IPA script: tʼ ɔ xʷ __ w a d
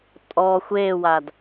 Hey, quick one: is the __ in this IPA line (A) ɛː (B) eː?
B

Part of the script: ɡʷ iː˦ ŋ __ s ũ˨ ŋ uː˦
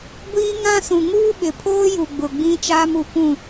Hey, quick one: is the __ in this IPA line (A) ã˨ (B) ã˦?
B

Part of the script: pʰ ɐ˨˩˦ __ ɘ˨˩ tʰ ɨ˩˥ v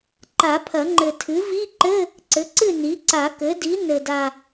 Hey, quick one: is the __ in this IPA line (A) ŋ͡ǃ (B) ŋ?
A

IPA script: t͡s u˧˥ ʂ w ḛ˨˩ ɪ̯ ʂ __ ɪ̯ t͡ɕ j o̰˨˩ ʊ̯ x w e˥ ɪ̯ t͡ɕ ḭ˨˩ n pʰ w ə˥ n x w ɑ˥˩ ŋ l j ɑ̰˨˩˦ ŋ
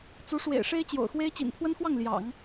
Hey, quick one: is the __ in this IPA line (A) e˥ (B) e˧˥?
A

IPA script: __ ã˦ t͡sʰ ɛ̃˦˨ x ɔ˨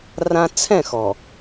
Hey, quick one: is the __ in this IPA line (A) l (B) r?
B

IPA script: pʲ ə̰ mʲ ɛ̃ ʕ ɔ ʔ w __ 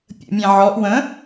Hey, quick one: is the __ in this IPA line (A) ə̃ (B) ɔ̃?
A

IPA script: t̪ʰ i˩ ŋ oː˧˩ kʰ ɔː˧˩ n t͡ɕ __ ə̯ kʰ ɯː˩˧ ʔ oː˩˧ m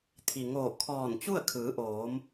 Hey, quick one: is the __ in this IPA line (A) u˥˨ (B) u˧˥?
A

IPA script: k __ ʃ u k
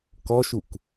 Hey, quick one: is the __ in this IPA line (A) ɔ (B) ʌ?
A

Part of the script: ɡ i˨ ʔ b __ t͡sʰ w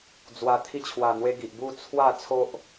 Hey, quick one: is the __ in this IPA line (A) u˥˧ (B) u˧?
A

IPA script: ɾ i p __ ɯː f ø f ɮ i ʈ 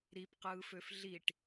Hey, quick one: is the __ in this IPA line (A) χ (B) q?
B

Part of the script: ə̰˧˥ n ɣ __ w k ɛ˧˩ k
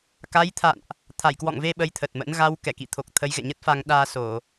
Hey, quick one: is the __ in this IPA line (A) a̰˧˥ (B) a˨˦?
B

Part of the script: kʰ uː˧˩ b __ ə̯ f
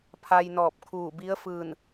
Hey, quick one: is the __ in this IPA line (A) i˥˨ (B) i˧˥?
B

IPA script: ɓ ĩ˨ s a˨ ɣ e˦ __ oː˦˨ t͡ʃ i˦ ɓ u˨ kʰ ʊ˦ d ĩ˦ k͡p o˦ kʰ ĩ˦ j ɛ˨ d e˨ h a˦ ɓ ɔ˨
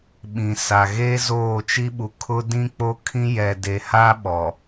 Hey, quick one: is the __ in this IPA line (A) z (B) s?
A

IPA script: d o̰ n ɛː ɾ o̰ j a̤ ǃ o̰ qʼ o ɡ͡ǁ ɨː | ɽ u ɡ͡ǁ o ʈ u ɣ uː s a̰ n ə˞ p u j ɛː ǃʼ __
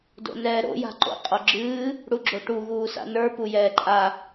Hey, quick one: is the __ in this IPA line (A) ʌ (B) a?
B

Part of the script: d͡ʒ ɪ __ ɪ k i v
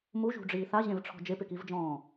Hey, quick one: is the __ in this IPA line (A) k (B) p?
B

